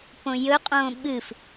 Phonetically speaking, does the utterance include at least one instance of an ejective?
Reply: yes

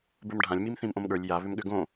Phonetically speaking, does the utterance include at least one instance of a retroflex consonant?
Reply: yes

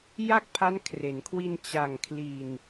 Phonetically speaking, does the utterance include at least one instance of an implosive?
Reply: no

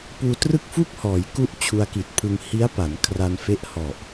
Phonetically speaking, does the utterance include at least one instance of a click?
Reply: no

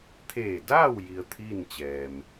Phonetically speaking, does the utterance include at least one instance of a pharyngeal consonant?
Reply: no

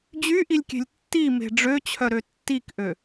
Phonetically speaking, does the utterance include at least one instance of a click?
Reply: no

